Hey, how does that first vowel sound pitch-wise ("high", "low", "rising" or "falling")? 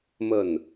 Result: falling